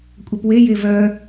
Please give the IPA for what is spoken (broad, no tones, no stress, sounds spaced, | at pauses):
kʷʼ œ p w e j e v œ